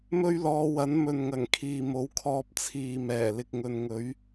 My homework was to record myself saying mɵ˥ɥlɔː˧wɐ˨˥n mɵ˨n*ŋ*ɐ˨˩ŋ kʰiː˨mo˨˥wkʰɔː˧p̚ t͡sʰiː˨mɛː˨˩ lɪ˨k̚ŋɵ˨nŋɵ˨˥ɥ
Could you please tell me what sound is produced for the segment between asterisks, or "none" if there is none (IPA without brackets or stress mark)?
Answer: ŋ